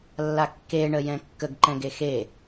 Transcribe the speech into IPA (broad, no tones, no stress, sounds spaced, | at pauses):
lː a kː e ɳ ə j ɛ̃ kː ə ɡ ǃ ɛ̃ ɡ e x e